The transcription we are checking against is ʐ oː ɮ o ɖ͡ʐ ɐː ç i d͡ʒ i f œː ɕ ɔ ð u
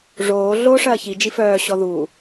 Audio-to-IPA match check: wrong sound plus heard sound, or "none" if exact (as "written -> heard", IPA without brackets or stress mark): ɖ͡ʐ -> ʂ